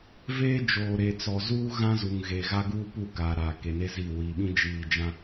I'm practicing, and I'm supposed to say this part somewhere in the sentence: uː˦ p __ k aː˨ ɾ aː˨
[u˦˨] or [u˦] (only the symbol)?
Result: u˦˨